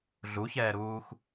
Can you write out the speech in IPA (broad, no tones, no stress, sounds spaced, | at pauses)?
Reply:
ɮ u ç ɛː ɾ uː x